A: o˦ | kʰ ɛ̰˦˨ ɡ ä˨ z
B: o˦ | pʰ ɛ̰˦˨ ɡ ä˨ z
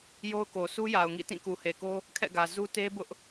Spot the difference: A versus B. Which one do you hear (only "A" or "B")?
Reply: A